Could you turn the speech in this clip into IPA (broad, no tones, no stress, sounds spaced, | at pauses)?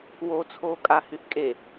w o t͡sʰ oː kʼ a h y θ kʼ e